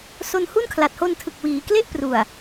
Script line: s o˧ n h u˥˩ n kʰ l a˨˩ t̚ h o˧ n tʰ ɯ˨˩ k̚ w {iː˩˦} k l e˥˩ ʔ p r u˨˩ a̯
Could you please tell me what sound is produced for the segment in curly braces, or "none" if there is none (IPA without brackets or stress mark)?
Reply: iː˩˦